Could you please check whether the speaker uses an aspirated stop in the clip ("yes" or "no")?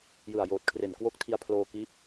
yes